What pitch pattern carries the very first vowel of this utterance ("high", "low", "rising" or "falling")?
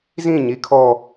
falling